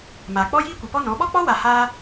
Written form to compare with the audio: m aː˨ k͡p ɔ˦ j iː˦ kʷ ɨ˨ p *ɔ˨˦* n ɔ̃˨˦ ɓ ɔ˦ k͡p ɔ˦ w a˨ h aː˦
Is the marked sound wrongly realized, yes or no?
yes